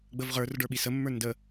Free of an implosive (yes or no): no